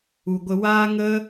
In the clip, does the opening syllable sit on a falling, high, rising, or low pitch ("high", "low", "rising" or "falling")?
low